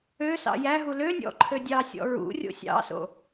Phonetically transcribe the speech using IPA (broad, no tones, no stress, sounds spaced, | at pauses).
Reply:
ø s ɑ̰ j æ ɦ u l ø nʲ ɔ̰ ǃʰ ø dʲ ɑ sʲ ɔ̰ ɹ ṵ rʲ o̰ sʲ ɑ̰ s o̰